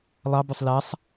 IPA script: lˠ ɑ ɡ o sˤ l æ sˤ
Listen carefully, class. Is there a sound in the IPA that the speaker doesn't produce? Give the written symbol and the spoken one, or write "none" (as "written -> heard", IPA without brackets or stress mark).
ɡ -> b